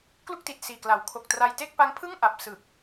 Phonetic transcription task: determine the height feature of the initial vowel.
high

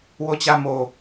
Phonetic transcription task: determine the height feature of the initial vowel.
mid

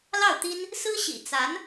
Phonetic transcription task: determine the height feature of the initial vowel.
low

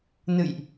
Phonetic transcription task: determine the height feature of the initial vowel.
high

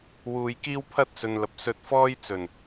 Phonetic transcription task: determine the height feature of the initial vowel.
high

